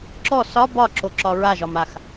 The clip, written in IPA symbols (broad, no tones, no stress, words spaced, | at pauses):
ǁɔ sɒ bɒǁoǁɒ ɹaʒɒmax